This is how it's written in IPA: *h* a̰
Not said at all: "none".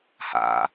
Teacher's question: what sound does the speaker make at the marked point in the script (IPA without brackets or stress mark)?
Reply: h